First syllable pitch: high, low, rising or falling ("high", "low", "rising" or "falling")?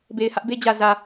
low